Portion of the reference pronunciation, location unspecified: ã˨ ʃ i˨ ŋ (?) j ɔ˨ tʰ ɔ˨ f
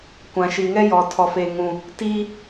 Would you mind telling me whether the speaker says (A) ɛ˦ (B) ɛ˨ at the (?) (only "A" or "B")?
A